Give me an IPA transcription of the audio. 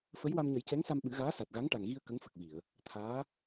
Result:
fə˧˥jwa˧m ɲə˨˩˦jcɛ˧˥ŋsa˧m ɓɨ˨˩˦ɣaː˧˥sa˨˩t̚ɣa˧˥ŋ ʈa˨˩ŋɣi˧ə̯ kə˧˥ŋfə˨˩k̚vi˨˩˨ə̯ | t̪ʰaː˧˥

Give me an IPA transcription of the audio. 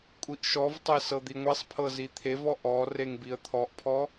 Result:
kʷʼiʔʃɔvtˤe sɤd̪iŋʷesˤpʰɤ zit̪ʰevɔ ʔɔ reŋbiə̯t̪ʰɔʔpʰɔ

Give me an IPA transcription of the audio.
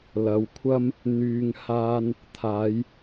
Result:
lɐ˨˧wkʷʰɐ˥m | n̪yː˧ŋ haː˥n | t̪ʰaː˨˧j

